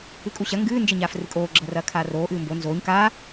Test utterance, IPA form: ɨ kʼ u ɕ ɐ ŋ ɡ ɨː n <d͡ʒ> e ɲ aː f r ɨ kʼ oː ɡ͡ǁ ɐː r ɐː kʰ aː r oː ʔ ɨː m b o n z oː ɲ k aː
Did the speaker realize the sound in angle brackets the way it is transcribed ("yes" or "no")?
yes